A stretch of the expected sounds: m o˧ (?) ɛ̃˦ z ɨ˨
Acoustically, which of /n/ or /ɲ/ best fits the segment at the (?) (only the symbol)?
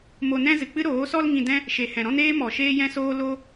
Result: n